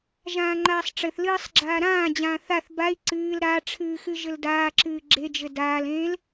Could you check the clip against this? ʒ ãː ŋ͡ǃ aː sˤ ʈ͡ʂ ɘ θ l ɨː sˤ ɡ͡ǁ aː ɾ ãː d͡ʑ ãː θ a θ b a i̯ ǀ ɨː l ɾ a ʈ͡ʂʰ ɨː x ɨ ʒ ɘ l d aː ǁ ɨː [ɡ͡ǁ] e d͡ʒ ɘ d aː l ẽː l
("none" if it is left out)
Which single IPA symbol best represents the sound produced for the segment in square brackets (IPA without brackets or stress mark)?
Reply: ɡ͡ǁ